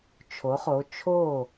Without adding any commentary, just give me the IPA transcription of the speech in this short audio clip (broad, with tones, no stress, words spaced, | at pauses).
t͡ʃʰo˨˥χo˨˥ t͡ʃʰo˥˩